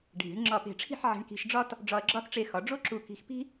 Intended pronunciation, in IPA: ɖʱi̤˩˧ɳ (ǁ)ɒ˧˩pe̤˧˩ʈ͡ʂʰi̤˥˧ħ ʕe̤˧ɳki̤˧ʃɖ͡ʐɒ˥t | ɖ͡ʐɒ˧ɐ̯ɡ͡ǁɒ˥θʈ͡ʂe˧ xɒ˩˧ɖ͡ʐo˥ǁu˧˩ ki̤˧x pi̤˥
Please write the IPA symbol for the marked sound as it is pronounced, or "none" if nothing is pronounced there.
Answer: ŋ͡ǁ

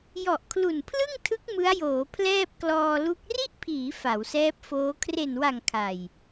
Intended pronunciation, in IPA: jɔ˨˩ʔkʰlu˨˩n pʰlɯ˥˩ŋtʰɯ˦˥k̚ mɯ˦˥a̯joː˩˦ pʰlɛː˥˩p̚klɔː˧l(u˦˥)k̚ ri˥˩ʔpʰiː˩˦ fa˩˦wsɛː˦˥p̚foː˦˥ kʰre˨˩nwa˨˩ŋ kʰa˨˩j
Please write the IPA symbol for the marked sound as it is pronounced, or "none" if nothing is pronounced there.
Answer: u˦˥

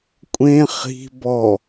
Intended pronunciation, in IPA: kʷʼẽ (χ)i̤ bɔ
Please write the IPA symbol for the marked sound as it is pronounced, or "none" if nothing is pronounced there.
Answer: χ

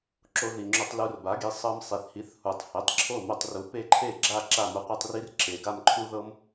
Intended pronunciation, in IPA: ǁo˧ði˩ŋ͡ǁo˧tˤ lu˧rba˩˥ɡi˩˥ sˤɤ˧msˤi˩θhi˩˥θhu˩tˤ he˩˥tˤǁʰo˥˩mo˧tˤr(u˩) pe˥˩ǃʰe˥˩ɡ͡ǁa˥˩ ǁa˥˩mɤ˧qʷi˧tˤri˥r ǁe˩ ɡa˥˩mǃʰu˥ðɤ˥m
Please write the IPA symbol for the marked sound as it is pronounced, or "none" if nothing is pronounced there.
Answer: u˩˥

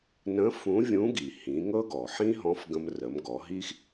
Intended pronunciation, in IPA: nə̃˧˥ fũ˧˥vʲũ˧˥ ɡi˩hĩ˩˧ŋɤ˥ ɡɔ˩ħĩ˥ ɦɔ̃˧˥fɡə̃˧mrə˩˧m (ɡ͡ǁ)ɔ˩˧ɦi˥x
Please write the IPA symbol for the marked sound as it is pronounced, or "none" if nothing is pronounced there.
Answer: ɡ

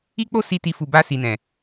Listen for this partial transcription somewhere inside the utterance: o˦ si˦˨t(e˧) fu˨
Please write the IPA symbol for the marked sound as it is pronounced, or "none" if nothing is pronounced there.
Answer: i˧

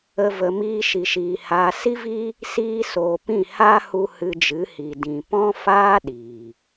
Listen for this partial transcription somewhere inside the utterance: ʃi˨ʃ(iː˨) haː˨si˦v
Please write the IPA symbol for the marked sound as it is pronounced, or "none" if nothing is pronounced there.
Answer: iː˨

